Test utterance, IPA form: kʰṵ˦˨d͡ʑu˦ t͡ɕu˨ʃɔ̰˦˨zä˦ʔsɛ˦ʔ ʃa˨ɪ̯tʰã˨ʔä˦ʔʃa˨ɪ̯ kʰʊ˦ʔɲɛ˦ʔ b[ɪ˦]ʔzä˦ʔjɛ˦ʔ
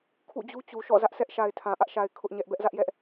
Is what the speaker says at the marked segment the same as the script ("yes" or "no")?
no